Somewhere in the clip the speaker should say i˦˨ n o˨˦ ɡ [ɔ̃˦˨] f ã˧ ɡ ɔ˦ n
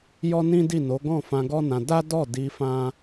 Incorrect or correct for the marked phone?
correct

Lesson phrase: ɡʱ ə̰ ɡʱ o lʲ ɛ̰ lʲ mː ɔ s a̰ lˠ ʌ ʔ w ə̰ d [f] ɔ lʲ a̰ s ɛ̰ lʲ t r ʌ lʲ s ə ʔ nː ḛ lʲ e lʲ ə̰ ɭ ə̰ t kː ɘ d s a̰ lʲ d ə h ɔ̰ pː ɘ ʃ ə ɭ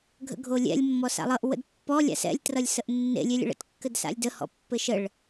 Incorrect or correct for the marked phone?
incorrect: pː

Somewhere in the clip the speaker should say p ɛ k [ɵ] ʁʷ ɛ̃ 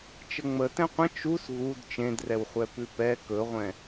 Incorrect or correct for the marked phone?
correct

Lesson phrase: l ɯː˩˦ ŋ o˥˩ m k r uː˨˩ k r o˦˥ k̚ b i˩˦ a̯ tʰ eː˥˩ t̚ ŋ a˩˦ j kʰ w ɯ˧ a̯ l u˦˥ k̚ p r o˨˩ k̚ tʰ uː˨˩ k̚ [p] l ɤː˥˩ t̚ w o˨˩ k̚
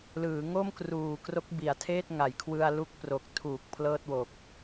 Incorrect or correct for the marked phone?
incorrect: pʰ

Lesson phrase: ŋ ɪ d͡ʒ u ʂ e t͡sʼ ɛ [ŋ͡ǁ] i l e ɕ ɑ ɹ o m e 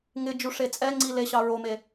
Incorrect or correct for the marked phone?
incorrect: ŋ͡ǀ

